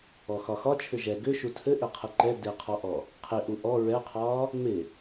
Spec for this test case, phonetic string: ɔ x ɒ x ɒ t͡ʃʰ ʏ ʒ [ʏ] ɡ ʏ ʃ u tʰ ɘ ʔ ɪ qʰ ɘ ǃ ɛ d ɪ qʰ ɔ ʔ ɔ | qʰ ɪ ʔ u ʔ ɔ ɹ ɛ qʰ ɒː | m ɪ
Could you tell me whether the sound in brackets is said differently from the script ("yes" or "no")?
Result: yes